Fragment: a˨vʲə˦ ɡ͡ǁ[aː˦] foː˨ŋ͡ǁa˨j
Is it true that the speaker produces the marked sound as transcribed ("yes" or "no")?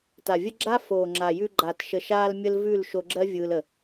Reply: no